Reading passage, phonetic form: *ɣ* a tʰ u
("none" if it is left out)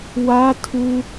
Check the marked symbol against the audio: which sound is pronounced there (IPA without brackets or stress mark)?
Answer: w